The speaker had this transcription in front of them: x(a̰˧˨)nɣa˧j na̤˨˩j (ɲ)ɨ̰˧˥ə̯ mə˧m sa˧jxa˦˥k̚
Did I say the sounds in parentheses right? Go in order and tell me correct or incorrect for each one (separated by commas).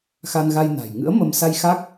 incorrect, incorrect